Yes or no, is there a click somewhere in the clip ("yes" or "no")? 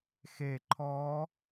yes